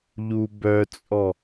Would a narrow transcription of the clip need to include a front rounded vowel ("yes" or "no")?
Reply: yes